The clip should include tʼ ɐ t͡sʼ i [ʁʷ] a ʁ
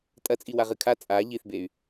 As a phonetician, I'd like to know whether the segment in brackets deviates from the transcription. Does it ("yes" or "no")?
yes